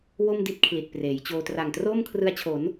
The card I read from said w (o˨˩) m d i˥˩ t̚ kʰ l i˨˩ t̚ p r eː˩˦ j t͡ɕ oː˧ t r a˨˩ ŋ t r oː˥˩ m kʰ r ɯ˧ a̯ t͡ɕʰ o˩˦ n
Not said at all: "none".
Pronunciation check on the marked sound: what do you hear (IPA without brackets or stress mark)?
o˥˩